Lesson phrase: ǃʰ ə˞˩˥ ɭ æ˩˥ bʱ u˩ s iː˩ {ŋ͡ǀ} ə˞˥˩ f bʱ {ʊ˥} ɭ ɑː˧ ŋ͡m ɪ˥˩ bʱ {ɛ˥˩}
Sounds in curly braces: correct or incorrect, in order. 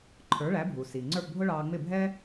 correct, correct, incorrect: ɛ˥

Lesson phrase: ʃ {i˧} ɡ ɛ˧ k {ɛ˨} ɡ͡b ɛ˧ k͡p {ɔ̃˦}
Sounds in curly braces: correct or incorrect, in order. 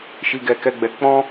correct, incorrect: ɛ˧, correct

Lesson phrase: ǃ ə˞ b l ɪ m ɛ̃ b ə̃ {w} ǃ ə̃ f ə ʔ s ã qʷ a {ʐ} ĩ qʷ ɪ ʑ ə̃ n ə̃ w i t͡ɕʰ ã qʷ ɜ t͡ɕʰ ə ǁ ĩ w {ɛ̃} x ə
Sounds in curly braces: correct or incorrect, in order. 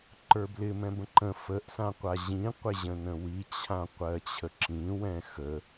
incorrect: none, incorrect: ʑ, correct

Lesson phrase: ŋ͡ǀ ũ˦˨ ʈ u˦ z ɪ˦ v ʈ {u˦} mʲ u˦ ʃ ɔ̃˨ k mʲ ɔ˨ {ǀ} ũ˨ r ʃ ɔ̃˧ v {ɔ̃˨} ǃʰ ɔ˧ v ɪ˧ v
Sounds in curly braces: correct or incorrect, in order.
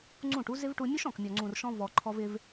incorrect: u˧, incorrect: ŋ͡ǀ, incorrect: ɔ˨

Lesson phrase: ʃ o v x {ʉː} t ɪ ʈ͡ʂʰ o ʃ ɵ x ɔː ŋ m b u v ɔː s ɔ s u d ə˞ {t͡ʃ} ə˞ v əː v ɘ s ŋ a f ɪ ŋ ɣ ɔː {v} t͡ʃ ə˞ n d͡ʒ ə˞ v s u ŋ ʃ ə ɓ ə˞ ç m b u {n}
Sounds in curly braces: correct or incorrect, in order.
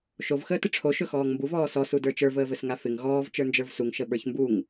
incorrect: əː, correct, correct, incorrect: ŋ

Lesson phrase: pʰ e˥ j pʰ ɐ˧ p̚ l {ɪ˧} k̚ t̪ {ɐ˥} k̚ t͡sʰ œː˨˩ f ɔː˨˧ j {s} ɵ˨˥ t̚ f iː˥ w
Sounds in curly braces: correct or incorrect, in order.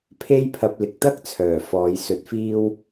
correct, correct, correct

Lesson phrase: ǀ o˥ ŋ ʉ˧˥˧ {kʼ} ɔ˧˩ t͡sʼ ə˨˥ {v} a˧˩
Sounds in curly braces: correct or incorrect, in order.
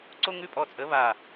incorrect: pʼ, incorrect: β

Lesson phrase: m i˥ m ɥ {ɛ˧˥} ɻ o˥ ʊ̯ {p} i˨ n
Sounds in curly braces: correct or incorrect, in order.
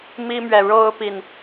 incorrect: ɛ˨, correct

